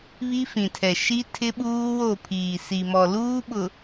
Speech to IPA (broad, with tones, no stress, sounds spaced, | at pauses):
β i˦ f ĩ˨ tʰ ɛ˨ ʃ i˦ tʰ ɪ˦ ɓ uː˦ w o˦˨ pʰ iː˨ s i˨ m ɔ˨ l uː˦ ɓ ʊ˨